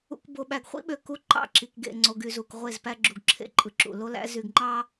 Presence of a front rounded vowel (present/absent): present